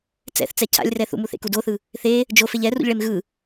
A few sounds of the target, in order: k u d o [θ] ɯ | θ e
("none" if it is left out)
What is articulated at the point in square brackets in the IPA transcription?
θ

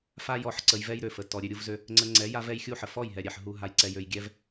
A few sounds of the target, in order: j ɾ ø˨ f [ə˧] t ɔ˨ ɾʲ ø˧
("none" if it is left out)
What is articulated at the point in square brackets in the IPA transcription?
ə˨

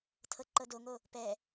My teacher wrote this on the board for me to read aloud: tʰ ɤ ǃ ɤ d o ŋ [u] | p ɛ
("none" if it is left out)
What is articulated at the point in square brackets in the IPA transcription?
o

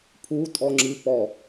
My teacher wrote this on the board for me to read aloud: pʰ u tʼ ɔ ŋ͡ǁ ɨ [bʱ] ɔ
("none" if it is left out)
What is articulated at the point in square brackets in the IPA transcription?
p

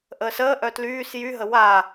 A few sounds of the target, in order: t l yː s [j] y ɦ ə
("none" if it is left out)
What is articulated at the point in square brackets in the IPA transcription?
j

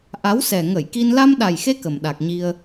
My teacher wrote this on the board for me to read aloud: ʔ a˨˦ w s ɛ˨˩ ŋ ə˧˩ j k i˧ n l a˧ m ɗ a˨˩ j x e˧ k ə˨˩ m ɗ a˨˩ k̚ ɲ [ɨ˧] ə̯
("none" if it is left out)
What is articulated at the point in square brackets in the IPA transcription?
i˧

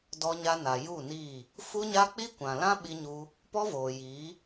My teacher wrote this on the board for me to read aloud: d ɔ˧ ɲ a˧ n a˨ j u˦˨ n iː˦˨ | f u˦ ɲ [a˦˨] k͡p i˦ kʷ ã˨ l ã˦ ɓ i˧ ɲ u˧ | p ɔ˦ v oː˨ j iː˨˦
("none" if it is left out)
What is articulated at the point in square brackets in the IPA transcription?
a˦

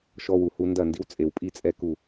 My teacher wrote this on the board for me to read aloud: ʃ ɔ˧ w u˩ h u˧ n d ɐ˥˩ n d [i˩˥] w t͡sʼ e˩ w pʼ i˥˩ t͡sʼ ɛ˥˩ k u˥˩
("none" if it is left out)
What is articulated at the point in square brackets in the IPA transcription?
i˥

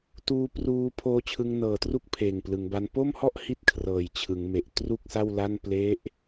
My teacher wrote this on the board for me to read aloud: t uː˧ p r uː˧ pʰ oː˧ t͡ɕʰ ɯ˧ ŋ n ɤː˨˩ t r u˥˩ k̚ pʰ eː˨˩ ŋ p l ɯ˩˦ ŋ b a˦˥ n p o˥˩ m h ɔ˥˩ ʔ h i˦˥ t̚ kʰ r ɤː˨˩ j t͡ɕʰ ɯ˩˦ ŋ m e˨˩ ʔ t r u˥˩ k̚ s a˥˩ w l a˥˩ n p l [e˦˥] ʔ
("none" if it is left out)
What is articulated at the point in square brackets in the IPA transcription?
e˦˥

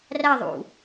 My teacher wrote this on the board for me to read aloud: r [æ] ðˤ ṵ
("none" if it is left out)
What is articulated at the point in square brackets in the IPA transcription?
æ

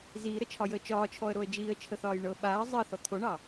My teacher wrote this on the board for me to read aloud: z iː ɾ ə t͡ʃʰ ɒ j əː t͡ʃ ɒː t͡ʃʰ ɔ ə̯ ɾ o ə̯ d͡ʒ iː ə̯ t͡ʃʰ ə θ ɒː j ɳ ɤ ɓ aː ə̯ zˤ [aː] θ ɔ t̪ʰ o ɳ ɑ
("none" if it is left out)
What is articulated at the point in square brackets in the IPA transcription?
əː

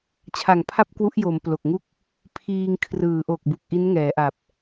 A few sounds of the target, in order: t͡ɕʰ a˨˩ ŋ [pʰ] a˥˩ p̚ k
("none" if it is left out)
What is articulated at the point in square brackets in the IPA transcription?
pʰ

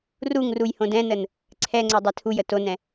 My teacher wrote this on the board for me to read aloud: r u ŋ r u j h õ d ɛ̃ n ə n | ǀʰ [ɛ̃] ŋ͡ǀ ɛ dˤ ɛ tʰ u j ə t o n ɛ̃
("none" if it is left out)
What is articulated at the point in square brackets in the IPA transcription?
ɛ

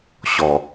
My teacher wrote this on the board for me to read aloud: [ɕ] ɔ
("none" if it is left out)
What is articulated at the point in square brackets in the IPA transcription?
ɕ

